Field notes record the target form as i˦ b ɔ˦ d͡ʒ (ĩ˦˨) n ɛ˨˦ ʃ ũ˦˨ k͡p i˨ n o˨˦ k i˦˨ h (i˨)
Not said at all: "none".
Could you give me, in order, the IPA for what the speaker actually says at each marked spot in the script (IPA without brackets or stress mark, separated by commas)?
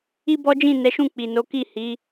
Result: ĩ˦˨, i˨˦